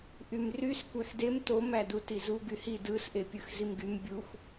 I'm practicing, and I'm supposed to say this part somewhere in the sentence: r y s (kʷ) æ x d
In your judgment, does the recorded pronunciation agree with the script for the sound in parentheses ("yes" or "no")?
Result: yes